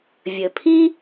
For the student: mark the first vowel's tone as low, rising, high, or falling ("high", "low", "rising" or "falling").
low